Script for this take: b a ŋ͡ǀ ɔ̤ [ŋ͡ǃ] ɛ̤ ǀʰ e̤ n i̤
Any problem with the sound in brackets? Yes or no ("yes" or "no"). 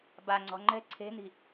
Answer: no